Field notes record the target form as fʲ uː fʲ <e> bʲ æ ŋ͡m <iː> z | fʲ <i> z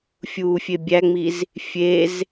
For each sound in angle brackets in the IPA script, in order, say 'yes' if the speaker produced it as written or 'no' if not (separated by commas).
yes, no, no